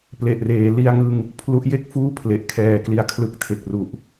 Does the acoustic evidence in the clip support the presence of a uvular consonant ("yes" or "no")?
no